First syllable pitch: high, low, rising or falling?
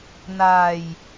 low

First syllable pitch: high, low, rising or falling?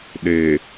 low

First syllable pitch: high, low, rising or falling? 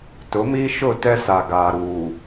rising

